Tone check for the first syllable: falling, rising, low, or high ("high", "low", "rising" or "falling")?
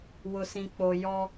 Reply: low